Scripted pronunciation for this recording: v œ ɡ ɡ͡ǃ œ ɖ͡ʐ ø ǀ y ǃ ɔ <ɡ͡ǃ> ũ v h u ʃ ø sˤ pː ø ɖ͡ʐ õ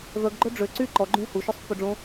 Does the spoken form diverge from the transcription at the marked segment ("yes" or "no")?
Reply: no